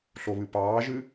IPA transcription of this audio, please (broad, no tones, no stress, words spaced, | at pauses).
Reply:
ɬoβɨpɑːʒɨ